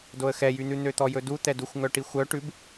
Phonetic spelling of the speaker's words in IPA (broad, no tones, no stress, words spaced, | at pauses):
doə̯xɛjyn̪ʉ n̪øt̪ɔjɵdu t̪ɛduxʷŋœʈi xʷœ ʈʉb